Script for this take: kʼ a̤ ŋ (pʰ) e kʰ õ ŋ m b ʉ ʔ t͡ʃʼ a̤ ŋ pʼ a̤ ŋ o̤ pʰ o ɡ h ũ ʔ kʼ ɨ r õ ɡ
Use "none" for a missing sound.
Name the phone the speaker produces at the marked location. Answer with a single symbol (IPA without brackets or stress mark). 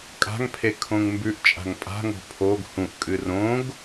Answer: pʰ